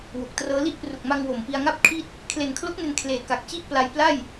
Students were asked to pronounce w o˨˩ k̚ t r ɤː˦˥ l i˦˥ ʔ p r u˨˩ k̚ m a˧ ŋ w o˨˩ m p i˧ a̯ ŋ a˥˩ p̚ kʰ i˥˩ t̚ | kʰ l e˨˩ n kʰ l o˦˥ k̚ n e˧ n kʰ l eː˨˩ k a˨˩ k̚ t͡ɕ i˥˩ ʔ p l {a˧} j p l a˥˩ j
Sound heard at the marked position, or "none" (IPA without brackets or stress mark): a˧